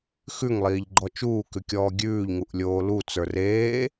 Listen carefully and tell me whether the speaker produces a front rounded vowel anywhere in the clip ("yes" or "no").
no